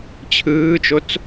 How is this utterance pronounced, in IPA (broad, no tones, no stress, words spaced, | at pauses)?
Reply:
t͡ɕʰɯːt͡ʃot͡s